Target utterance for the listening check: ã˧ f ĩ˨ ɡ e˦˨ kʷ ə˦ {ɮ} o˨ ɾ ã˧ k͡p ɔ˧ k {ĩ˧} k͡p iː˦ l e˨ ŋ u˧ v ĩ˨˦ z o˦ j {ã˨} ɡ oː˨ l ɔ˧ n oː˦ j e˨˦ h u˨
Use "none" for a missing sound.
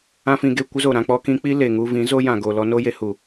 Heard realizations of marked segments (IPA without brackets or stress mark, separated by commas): z, ĩ˧, ã˨